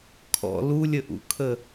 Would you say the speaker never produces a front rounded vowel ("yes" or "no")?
yes